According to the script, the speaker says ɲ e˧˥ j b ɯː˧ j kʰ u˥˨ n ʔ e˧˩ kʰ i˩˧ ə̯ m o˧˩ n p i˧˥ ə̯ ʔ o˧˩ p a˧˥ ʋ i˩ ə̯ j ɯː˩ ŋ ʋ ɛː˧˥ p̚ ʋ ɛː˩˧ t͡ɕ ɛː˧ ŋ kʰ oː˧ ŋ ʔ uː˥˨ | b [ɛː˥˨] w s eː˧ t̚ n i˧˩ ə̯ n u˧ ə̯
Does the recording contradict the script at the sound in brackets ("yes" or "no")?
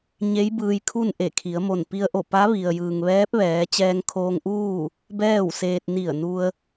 no